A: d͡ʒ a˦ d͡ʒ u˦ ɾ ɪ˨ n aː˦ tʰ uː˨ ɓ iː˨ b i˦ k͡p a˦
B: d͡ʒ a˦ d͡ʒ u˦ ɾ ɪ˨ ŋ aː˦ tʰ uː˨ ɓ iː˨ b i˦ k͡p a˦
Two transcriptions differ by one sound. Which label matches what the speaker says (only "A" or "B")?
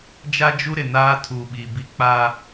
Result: A